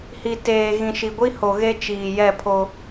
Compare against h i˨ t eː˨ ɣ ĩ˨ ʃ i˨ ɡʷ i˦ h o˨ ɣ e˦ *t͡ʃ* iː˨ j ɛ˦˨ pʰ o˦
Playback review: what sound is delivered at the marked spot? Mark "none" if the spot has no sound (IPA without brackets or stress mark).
t͡ʃ